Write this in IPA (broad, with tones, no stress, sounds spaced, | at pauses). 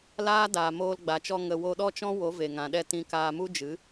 l aː˦ d aː˨ m oː˧ l ɡ͡b a˨ t͡ʃ ɔ˧ ŋ ə˨ w o˧ ɗ ɔ˦ t͡ʃ ɔ̃˦ w o˨˦ v e˨ ŋ ã˨ ɗ ɛ˦˨ t ĩ˧ k aː˧ m u˦ d͡ʒ ɨ˨˦